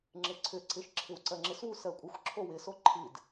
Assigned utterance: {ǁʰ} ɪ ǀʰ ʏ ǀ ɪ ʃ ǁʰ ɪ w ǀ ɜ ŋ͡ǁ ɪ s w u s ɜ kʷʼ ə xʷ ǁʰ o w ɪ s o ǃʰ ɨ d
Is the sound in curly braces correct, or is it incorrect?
incorrect